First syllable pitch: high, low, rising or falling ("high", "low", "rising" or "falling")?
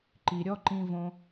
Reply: low